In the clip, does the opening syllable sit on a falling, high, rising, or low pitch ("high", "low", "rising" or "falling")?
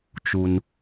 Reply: low